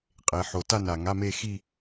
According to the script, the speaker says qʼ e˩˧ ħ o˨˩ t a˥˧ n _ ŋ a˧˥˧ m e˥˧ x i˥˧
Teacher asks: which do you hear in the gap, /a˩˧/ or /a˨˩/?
a˨˩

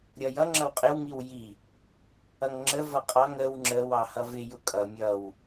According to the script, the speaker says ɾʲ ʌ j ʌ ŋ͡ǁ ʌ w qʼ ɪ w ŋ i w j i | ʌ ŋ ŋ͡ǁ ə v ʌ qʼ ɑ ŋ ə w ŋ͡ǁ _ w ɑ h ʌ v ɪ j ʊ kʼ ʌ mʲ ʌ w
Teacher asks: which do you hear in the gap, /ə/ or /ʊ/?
ə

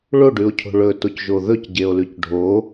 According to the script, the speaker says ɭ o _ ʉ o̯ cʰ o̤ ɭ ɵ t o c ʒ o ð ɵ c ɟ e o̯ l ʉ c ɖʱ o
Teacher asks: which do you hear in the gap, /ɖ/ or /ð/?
ɖ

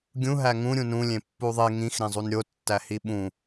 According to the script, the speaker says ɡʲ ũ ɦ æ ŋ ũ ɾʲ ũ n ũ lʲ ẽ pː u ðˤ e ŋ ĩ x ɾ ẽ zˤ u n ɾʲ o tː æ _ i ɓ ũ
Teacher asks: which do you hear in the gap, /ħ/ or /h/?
h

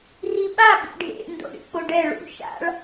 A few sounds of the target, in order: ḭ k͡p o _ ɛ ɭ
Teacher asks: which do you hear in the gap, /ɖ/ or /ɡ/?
ɖ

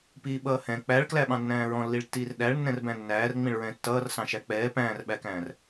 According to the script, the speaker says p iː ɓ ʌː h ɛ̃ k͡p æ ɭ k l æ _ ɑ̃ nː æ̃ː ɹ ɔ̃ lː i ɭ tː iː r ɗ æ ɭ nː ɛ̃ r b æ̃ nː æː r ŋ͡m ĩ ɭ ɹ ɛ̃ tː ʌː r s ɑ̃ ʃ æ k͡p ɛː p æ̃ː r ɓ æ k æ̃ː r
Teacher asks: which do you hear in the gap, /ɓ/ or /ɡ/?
ɓ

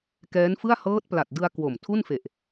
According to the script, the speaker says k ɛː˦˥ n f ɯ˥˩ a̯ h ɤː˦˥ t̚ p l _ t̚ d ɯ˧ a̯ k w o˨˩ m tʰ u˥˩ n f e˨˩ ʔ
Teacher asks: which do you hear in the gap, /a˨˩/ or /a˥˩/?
a˨˩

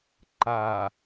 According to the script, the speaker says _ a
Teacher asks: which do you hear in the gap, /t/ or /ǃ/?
ǃ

